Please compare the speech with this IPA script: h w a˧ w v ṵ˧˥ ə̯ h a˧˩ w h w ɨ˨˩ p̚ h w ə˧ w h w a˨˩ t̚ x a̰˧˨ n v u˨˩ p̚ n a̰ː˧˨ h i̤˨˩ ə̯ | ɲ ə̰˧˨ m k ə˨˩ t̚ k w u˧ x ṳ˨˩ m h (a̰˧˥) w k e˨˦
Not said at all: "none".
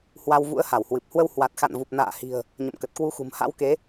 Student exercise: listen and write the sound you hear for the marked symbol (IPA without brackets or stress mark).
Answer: a̰˧˥